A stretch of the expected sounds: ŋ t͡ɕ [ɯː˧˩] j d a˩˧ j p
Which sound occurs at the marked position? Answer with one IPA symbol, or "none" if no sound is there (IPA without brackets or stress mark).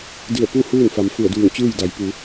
ɯː˥˨